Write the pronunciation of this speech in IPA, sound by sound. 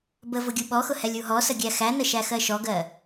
b ə v ʊ ɡʲ u ɓ ɔ x ʊ h ɛ lʲ u ɦ ɔ s ə ɡʲ æ x æ n ə ʃ æ x ɜ ʃ ɔ ɡ ɜ

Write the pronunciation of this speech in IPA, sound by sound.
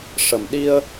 ʂ ə˨˩ m ɗ i˧ ə̯

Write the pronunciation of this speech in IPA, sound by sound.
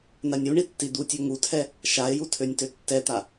n a nʲ u ɳ i tː i d̪ u tʲ ø ŋ u tʰ ɛ | ʃ a e̯ j u tʰ ø nʲ t ø tː ɛ t̪ a

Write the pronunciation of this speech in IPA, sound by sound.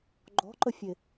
ɡ͡ǃ ɔ̤ ǃ ə fʲ e

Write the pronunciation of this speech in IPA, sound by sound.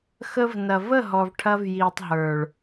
x ə˦ v n ɐ˨ v ə˦˨ ɦ ɔ˨ v ʈʰ ɐ˧ v j iː˨ tˤ ɦ ə˞˨ ɭ

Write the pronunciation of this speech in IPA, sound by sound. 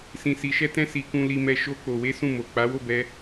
s ĩ˧ s i˧ ʃ ɛ˦ t ɛ̃˦ s i˧ k ũ˧ l i˦ m ɛ˦ ʃ o˦ k͡p o˧ w e˦ s ũ˦˨ m o˨ k͡p a˨˦ w o˦˨ b ɛ˧

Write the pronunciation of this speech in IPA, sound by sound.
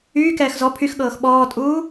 yː k ɛː x z ɔ pʰ y x ɠ ɤː x ɓ ɔː tʼ uː

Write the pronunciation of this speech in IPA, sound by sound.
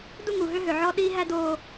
d u˥ ŋ u˩ ɦ ø˥ ɦ ø˩ ʕ ɔ˥ ɗ iː˥ ɦ æ˥ d oː˧

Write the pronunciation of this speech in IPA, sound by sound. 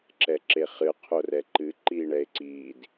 ǁ ɛ ǁ e χ ɨ qʰ o r ɛ ǃ ɨ ǃ iː ɳ ɛ e̯ ǀ iː d

